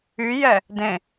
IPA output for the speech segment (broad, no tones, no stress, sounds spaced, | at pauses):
y j ɛ | d ẽ